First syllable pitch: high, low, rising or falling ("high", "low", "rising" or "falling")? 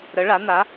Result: rising